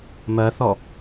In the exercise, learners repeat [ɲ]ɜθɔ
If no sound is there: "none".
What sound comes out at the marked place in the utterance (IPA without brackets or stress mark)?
m